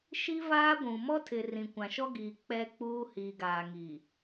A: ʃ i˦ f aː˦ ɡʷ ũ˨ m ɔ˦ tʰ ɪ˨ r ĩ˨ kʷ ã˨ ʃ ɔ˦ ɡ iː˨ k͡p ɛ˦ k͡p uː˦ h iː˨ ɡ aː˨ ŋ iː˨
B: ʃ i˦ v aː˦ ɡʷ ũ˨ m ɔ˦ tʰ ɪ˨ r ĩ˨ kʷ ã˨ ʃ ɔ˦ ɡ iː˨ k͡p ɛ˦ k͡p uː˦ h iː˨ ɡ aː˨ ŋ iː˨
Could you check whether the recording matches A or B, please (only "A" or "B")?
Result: B